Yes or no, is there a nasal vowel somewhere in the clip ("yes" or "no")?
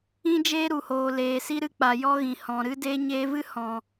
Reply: yes